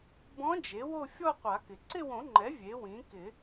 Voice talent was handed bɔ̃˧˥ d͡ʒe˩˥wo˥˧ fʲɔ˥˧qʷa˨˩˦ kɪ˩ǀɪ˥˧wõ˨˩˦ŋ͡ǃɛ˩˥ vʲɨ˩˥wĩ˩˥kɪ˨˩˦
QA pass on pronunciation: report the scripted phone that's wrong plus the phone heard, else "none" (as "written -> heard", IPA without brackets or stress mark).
ɨ˩˥ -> e˩˥